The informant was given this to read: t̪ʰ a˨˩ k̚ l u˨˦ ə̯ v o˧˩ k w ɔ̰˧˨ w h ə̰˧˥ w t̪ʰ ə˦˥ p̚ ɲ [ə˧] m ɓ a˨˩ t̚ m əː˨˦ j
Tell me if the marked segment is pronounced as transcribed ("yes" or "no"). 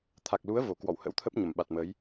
no